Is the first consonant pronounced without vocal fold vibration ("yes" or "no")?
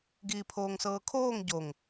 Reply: no